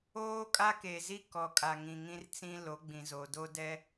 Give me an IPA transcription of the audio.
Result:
oː˦ kʼ a˦ k e˨ z i˦ k ɔ˨ kʼ a˨ ŋ ĩ˨ ŋ ĩ˦ r t͡s ĩ˦ l o˨˦ ɡ͡b ĩ˨ z o˨ d o˦ d ɛ˦

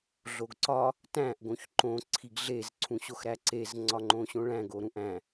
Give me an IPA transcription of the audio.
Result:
ɮ o ɡ ǀ ɒ | t æ̃ ʔ ɡ õ ç ǃ õ ǀʰ i ɡ ɮ e z ǀʰ ũ ɕ o x ɾ æ ǀ e z ŋ͡ǀ ɒ ŋ͡ǃ õ ɕ õ ɭ æ̃ ɡ o ɾ ũ ʔ æ̃

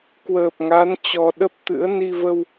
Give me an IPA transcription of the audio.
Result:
k w əː˨˩ p̚ ŋ a˨˦ n t͡ɕ ɔ˨˩ ɗ ə˦˥ p̚ t̪ ɨ̰˧˥ ə̯ n i˧ v ə˧ w

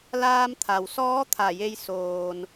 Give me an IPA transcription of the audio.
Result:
l aː˧ m t̪ʰ a˩ w s ɔː˧˥ t̪ʰ a˧˩ j e˧ j s oː˩ n

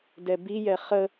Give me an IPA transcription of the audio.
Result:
d ɛ b i j ɛ χ ə

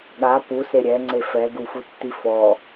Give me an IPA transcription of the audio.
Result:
ɠ a p u s e ɾʲ ɛ ŋ͡ǀ e f ɛ ɡ u f u tː i f ɔ

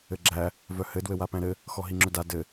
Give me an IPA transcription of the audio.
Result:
ɘ ɡ͡ǁ æ | v œ h ɘ d w ɘ w a p æ̃ ɾ ɘ | x ɔ ɦ i ŋ͡ǁ œ d a d ɘ

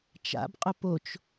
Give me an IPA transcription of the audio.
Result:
t͡ʃ a̰ b qʼ ʊ p o t͡ʃ

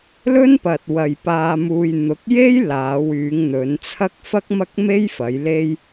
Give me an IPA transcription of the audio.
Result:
l ɵ˥ n p ɐ˨ t̚ w ɐ˨ j p aː˧ m uː˧ j n̪ ʊ˨˥ k̚ j e˥ j l aː˨˧ w yː˨˧ ŋ n̪ ɵ˨˧ n t͡sʰ ɐ˥ k̚ f ɐ˥ k̚ m ɐ˥ k̚ m e˥ j f ɐ˨˧ j l e˥ j

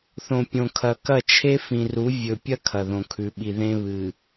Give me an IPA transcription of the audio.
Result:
θ õ˨ pʲ õ˨ kʰ ɐ˨ k ɐ˦˨ t͡ʃʰ e˦ f ĩ˨ r u˨˦ vʲ ɵ˨ pʲ ɐ˦ kʰ ɐ˨ ð õ˨ kʰ ʉ˨ ɓ i˨ ð ẽ˦ β ɨ˨

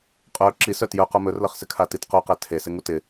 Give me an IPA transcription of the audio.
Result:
qʼ œ ǁ i s œ t j œ q o m ɵ r l ʌ χ s ɪ kʰ a t i t q o q ɛ tʰ e s ɪ ŋ u t ɪ

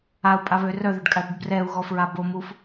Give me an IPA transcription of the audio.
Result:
a u̯ pʼ a β ø r œ ð ø ɖ kʼ a ɽ i ɖ b r ɛ u̯ ɣ ɔ f ɹ a b o m u f

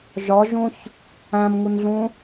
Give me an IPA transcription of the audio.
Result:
ʒ ɒ ʒ ũ ç | æ̃ m ŋ u n ɮ ũ

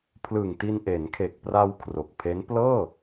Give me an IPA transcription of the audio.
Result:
pʰ l ɯ˨˩ ŋ t i˧ n ʔ e˩˦ n kʰ e˨˩ k̚ p r a˧ w kʰ r o˨˩ k̚ pʰ e˦˥ n p l ɤː˥˩

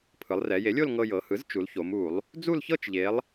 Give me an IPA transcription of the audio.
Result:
pʰ ɯ˩˧ lˠ r ɛ˩˧ j e˩˥ lʲ o˥˧ l ŋ ɤ˧ j ɤ˩˧ h ɯ˩˥ z t͡ʃ u˩˧ l ç o˩˧ m u˧˩˧ lˠ | d͡z u˥˧ l ç ɤ˥˧ t͡ʃ ʎ e˩˧ lˠ

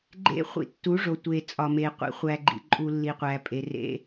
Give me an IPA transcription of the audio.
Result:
ɡ͡ǃ ḛ˦ χʷ ḭ˧ tː u˨˦ ʐ o˨ tʷ e˨ t͡sʼ ɒ˨ m e˨ qʷ ḭ˨˦ χʷ æ˧ ɡ͡ǃ ḭ˧ ǃʼ u˧ lː i˨ qʷ æ˨ pʼ e˨ r ḛ˦

